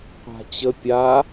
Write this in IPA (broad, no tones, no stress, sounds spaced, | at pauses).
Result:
qʷ a̤ t͡ɕ ə pʲ a